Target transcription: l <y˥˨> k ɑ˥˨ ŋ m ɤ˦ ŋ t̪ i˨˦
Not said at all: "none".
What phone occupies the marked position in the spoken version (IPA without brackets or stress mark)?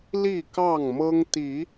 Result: i˥˨